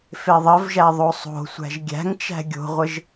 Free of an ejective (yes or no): yes